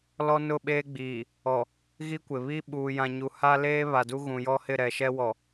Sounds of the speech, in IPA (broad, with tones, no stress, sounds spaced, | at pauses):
l ɔ˦ n ʊ˦˨ ɓ eː˦ ɡ͡b iː˨ | ɔ˨ | ɣ i˦ kʷ ɪ˨ β i˦ ɓ uː˨ j ã˨ ɲ u˨ h a˦ l eː˦ β a˨ d u˦ ɣ ũ˨ j ɔ˦ h ɪ˦˨ ɾ ɛ˨ ʃ ɛ˦ w ɔ˨